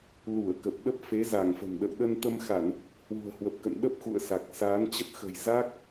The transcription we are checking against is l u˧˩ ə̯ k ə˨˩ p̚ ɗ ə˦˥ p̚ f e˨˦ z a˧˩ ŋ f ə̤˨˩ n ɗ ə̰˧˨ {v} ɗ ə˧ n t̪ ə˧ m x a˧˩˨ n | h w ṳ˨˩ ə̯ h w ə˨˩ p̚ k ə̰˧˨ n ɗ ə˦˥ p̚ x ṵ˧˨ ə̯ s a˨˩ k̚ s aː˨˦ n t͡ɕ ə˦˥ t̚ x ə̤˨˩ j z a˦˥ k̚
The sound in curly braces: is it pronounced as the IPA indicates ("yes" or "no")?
no